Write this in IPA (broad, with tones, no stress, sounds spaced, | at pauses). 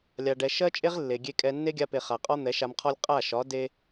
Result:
lʲ a˨ ɖ ɛ˨ ʃ ɜ˦ t͡ʃʼ e˦ ʁ lː e˨ ɡʲ e˧ kʼ ɛ˧ nː e˦ ɡʲ a˧ p e˨ χ a˨ qʼ ɒ˦ n̪ ɛ˨˦ ʃ a˧ m qʰ ɒ˦ lʲ qʼ a˦˨ ʃ ɒ˨˦ d e˦